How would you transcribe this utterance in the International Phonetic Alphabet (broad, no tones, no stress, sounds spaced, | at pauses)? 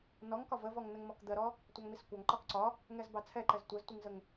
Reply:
n ɔ ŋ k ɒ v ə v ɔ ŋ n ə ŋ m ɔ k d̪ ɜ ɾ ɔ | tʷ ɑ ŋ m i s kʷ ɑ ŋ ǃ ɒ k ǀ ɒ | ŋ ɛ z b ɑ t͡sʰ ɛ ǃ ɛ z tʷ ɜ z tʷ i ŋ z ə ŋ